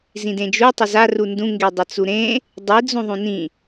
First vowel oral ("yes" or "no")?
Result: no